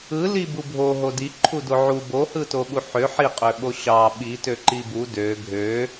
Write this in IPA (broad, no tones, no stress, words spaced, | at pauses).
ɯli bubʱo ɦodi ǃʰudoʕu bohɯtoɓu ħø ħiqʼøɓo ɕɑ ɓi tøǃibu dø ɡʱø